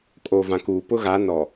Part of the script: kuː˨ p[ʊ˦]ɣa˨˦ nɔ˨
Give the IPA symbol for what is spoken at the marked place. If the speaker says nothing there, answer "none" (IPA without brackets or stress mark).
ʊ˦